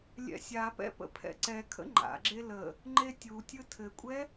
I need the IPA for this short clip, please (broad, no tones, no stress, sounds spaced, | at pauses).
lʲ ɛ̰ sʲ a p ɛ̰ p ə̰ pʰ ɛ̰ ǀ ɛ kʰ ə̰ ŋ͡ǃ a̰ ɡ͡ǁ e l ə | ŋ͡ǃ e tʲ u tʲ ɯ tʰ ɘ kʷʼ ɛ